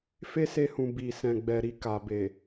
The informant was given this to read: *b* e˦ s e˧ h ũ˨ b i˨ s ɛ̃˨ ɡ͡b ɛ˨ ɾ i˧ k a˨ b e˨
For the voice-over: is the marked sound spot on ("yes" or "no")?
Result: no